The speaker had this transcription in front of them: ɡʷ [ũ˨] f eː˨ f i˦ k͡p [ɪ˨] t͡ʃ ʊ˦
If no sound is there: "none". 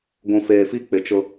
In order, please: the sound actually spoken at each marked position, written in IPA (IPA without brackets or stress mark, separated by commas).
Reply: ũ˨, ɪ˨